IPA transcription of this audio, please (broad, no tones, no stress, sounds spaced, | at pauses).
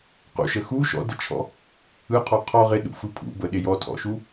q ṵ ʃ ə x u ʃ ɔ̰ d ə t͡ʃʰ ɔ̰ | ɯ qʰ ɔ qʰ ɔ ʁ ɪ ɗ ṵ f ɯ pʰ ṵ b ə ɗ ɪ j ɔ tʰ ɔ̰ ʃ u